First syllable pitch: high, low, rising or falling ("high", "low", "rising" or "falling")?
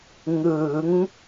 rising